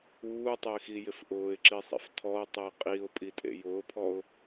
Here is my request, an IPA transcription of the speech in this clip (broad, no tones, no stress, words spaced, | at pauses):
uːtˤɪːxijɪf ʔʊːɪ̯ǁisˤḛf tʰɔʊ̯tˤe qʼiʊ̯pʼitʼḛ jʊːpʰɔʊ̯